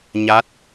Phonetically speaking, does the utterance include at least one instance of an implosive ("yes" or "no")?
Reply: no